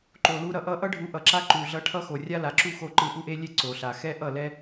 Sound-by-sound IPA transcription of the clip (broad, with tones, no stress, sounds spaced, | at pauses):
ǃ o˨ l u˧ ɾ ʌ˨ ʔ ʌ˦ ʔ ʌ˦ ɖʱ u˨˦ ʔ ʌ˨ ǁ a˦ ǃ u˨ ɮ ʌ˧ ʈʰ ʌ˧ x o˨ rʲ a˦ l a˨ ǁ u˦ x o˧ ǃ ɯ˧ ʔ u˦ ʔ e˦ lʲ e˦ ǀ o˨ ɬ a˨ x ɛ˦ ʔ ʌ˦˨ l ɛ˦